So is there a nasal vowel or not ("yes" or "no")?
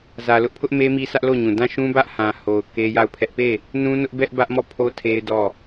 yes